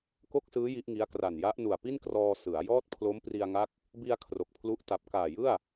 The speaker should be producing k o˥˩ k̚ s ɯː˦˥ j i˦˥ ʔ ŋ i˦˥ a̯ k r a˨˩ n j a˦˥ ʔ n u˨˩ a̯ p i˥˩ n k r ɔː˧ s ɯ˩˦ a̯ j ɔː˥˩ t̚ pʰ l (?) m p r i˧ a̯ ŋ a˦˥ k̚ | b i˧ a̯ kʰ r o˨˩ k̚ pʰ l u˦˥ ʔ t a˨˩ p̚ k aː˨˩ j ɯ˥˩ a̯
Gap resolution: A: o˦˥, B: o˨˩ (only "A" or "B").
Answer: A